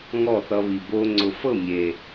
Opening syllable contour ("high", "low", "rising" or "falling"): falling